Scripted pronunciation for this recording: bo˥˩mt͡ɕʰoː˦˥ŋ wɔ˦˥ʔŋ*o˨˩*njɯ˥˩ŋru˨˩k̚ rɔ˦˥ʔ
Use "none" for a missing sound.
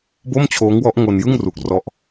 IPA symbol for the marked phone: o˧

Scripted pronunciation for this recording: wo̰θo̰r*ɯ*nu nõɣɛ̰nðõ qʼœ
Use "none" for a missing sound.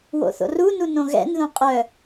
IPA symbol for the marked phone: u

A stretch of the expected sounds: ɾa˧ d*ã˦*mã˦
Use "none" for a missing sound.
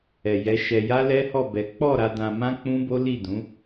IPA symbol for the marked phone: ã˧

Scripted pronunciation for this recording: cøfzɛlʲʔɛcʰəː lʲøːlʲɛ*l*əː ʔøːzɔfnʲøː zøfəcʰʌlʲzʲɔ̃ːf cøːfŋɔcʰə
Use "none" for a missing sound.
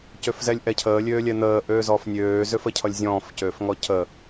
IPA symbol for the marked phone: n̪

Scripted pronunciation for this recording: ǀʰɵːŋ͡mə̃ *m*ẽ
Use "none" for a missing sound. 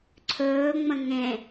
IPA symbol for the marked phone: ŋ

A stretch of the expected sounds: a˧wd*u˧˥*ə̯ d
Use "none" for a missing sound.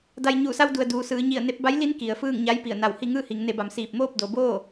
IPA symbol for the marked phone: u˩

